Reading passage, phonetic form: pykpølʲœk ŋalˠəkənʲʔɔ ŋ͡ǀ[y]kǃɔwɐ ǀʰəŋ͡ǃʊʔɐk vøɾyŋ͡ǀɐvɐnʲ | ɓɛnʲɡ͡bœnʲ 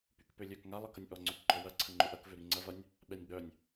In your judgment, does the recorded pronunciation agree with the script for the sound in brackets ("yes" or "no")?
no